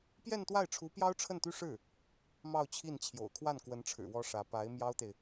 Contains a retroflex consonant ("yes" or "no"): yes